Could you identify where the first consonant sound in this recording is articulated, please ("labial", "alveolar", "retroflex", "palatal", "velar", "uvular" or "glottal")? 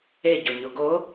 palatal